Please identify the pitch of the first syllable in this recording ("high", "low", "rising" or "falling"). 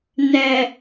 low